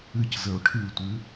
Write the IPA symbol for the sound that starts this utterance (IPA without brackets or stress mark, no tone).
ɨ